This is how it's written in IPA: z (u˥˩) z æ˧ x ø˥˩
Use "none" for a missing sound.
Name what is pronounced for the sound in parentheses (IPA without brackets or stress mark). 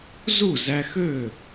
u˥˩